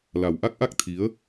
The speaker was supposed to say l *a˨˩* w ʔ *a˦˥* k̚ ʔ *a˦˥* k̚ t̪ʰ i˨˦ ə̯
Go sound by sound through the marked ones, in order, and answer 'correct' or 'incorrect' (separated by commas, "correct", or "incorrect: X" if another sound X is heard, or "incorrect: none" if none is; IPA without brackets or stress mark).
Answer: correct, correct, correct